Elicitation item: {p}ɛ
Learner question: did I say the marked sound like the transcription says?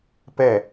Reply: yes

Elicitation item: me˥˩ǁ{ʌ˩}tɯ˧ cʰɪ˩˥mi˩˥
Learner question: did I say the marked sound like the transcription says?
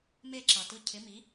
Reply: yes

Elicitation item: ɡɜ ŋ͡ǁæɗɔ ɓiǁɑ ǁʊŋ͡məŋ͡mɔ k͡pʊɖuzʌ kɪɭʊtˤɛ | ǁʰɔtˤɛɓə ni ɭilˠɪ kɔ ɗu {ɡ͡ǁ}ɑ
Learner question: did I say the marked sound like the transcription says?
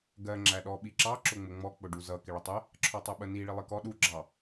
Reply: yes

